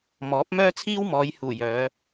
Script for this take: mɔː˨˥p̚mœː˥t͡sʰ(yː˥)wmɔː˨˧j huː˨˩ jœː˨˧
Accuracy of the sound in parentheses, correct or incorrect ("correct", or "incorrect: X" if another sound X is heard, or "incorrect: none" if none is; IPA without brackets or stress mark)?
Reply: incorrect: iː˥